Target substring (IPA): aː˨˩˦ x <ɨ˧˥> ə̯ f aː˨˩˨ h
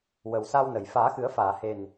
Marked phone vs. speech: incorrect: ɨ˨˩˦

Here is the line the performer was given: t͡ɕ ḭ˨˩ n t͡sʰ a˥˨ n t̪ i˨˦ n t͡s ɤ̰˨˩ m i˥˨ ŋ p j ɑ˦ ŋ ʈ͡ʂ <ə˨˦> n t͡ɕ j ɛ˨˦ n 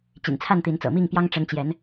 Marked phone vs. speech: correct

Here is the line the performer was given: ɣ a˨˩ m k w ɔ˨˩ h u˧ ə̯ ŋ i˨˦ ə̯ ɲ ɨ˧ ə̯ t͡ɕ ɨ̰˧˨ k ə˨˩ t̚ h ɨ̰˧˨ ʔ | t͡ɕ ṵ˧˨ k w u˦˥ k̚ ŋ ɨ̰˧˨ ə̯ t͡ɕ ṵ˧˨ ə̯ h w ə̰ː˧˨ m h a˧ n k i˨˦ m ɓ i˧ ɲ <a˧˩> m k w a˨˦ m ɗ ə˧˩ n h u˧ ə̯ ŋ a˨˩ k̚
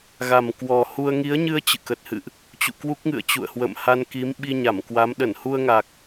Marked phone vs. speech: correct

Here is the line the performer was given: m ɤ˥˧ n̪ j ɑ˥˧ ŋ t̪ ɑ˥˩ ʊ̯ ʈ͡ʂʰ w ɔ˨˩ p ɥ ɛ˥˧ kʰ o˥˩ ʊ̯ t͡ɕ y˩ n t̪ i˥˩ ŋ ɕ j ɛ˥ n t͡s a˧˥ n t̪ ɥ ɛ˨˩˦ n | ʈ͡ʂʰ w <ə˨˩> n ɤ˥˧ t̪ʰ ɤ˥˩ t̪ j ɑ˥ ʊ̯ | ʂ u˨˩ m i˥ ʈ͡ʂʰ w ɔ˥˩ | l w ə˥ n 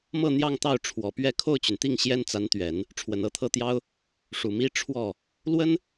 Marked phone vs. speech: correct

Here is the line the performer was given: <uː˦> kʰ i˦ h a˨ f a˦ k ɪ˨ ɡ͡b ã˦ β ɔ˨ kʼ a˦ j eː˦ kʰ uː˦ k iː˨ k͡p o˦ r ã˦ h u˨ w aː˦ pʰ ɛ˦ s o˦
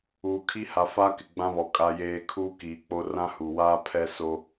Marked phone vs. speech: incorrect: uː˨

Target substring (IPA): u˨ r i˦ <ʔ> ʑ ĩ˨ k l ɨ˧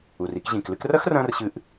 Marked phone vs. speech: incorrect: k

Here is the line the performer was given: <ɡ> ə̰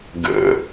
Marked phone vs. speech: correct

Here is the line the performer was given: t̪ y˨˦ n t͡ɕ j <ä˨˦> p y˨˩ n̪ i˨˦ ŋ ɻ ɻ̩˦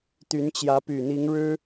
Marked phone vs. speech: correct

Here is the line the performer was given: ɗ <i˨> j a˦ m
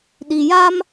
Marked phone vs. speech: correct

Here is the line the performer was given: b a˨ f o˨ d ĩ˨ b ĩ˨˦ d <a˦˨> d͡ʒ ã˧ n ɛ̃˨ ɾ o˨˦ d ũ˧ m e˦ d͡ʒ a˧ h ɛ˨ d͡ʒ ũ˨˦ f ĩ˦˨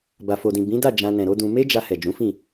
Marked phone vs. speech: correct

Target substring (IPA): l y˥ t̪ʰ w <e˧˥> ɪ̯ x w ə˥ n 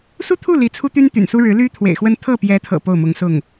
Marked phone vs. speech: incorrect: ḛ˨˩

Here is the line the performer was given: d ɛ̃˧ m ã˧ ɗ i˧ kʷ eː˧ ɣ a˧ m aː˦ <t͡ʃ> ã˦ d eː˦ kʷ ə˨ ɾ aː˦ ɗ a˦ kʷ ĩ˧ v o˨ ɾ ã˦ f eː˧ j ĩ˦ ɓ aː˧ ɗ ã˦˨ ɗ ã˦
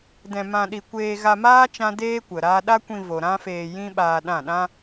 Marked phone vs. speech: correct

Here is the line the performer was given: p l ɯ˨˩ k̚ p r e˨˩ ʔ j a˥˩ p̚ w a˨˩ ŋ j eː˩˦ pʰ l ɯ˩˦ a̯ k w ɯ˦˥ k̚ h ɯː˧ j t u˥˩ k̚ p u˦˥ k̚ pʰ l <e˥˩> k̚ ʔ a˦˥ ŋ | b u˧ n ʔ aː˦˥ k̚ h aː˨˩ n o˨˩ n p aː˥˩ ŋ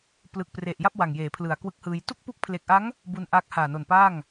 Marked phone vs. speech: incorrect: e˨˩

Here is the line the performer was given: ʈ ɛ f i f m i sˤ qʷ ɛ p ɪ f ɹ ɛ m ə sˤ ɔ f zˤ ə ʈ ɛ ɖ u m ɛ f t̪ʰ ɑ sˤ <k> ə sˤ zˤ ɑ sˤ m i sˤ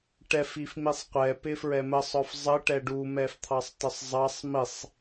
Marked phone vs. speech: incorrect: t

